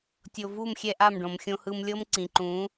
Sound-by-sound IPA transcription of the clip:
tʲo˨vu˦˨mxʲɛ˧ ʔa˦˨mɖõ˨m xʲõ˧hɯ˧mlʲɤ˦mǀĩ˨ ǃũ˨˦

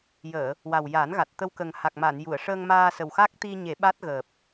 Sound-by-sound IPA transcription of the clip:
jəː˨˩˨ | wa˨˩wja˨˩˦nɣa˨˩t̚ t̪ə˧wkə˨˩ŋha˨˩k̚ma˨˩˨n ju˨˩˨ə̯ʂəː˧ŋmaː˧sə˨˩w xa˦˥k̚ t̪i˧ɲe˨˩˦ ɓa˦˥t̚ɣəː˨˩p̚

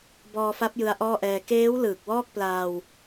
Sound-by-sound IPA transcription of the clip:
bɔː˧fa˦˥p̚ jɯ˦˥a̯ʔɔː˥˩ʔɛː˧ keː˦˥w lɯː˨˩k̚wɔː˥˩k̚plaː˧w

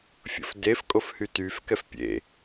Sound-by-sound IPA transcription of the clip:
fʲo̰fdef kʼofhytyfkɛf pʲḛ

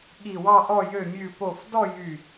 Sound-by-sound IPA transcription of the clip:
ɠi˧˩wɑ˥˧ʔɔ˥˧ jø˧˩mʲʉ˧˩po˧˩fdɔ˥˧ jy˧˩

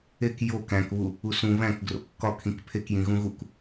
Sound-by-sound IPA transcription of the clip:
ek jo kæ̃kβu | usũ βæ̃k ɡro̰kːɒkʰĩk pʰekjĩ ɣũɣuk

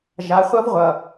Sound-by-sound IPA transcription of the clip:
ʒa˨˦χʷʌ˦v ʁʷʌ˨

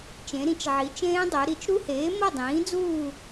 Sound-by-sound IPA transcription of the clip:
t͡ʃẽ˩˧ɾĩ˩˥t͡ʃ ʕi˩˧t͡ʃẽː˦˥dˤo˩˧ ɾi˧˩˧t͡ʃɾu˦˥heː˩˥ mɤ˥˨dˤĩː˩˥d͡zuː˥˨

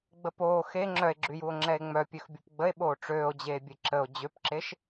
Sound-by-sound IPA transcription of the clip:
ɡ͡bəpoː xe ŋ͡ǁœe̯ɡ͡ǁyjuo̯ ŋ͡ǁɛe̯ŋ͡mœ pʲøxbʲupɡ͡bəe̯ ɓoːʈ͡ʂøːo̯d͡ʑeːbʲe ǁəo̯ d͡ʑøpǁeʃ

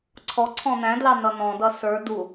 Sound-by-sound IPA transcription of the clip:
ǀʰɔǀʰɔ̃ n̪æ̃dlɑnʌ n̪ɔ̃dʌ sə˞ du

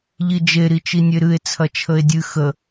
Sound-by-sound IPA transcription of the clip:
ʎid͡ʒe ɾit͡ʃinʲeɾɨe̯ t͡sʰɐt͡ʃʰəe̯dʲɨ xə

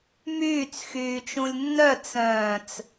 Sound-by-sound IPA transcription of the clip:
myːt͡s xyːt͡ʃũlʲnːœ t͡sœ̃ːt͡s

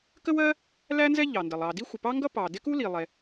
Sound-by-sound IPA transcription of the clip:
kə˥wɜ˥ | læ˥nzɛ˥ ʎɑ˩ndɜ˩lˠ ɑ˩ di˥xʷə˩pɑ˥ŋɡʌ˥ pɑ˩ dɪ˥ku˥li˩ lˠɛ˩

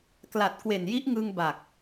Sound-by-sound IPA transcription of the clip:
kla˨˩t̚kwe˨˩nji˦˥ʔŋɯ˧ŋ ba˨˩k̚

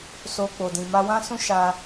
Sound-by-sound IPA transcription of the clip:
so˧k͡po˨dĩ˨ ma˧wã˦sũ˦ ʃa˧

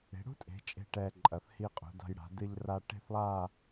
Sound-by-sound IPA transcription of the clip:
e̤˩˧ɽṳ˥tʼe̤˩˧t͡ʃʼe̤˧˩ ʈɛ˧ǃʼɐ˧˩θ hi˧qʼṳ˩˧da̤˧j ɽa̤˩˧dɨ˧ʎ ra˧ʈe̤˥˧θlˠa˥˧

